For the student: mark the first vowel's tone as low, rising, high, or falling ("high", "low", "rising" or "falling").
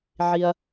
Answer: low